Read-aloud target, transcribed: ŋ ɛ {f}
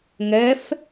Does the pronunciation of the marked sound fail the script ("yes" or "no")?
no